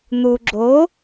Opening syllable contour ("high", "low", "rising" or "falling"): low